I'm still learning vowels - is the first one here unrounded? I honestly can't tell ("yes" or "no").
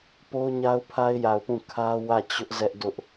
no